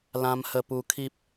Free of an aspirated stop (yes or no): no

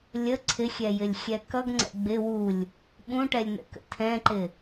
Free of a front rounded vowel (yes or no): yes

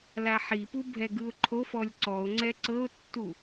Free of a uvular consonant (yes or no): yes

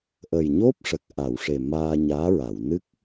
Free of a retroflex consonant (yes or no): no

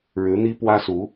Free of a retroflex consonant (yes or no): no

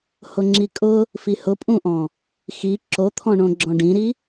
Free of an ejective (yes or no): no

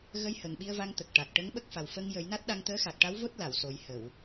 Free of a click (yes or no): yes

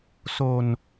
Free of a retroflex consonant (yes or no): yes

